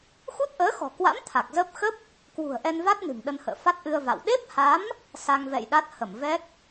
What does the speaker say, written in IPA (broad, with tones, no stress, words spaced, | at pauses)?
xu˦˥t̚ʔəː˨˦xɔ̤˨˩kwa̰˧˥m t̪ʰa˨˩k̚zəː˦˥p̚ xə˦˥p̚ | kwṳ˨˩ə̯ʔɛ˧nva˦˥t̚ nɨ̤˨˩ŋɗə˧nhə̰ː˧˨fa˦˥t̚ ʔɨ˧ə̯va̰˧˨w ɗe˦˥p̚ha˨˦m | sa˧ŋvɛ̰˧˨j ɗa˦˥t̚ hə˧˩mvɛ˦˥k̚